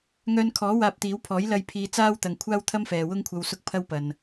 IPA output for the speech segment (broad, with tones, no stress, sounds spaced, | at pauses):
ŋ œː˧ n kʰ ɔː˨˥ w aː˧ p̚ t̪ iː˨˥ w pʰ ɔː˨˥ j l ɐ˨ j pʰ iː˧ t͡s aː˥ w t̪ ɐ˨ ŋ kʷʰ aː˥ w t̪ʰ ɐ˥ m f ɛː˨ w ʊ˥ ŋ kʷʰ ɐ˧ w s ʊ˥ k̚ pʰ ɐ˥ w p ɐ˨ n